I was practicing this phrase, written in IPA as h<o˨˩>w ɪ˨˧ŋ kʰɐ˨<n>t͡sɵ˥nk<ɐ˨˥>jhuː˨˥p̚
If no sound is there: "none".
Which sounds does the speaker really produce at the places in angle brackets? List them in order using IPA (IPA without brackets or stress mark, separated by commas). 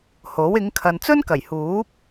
o˨˥, n, ɐ˨˩